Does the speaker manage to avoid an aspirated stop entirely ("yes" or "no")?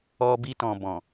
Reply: yes